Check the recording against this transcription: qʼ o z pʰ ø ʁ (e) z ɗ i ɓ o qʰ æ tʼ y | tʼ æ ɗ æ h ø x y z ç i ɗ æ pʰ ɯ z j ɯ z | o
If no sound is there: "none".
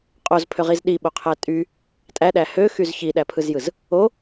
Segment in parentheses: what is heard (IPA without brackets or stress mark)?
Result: i